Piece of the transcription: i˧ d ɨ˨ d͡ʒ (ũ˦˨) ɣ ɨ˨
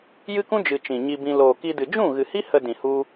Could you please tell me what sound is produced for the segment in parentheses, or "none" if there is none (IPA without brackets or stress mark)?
ũ˦˨